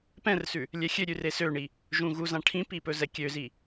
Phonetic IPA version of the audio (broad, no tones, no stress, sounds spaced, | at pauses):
p ɛ̃ r s ʉ | lʲ ɛ xʲ ø ɾʲ ʉ r e s ø ɳ i | ʒ ũ ɣ u z ã ʈʰ ĩ p i p ɵ z ɛ kʲ ø z i